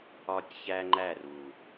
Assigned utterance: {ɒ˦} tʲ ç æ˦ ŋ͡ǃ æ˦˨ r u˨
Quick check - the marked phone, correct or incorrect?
correct